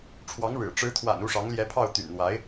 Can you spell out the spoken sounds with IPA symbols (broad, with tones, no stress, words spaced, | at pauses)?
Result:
ʈ͡ʂʰwɑ˧˥ŋɻɻ̩˨˩ ʈ͡ʂɻ̩˧˥t̪ʰwa̰˨˩n u˥˩ʂɑ˧˥ŋljɛ˧˥pʰɑ˥˩ʊ̯ t̪y̰˨˩nn̪wa˧˥ɪ̯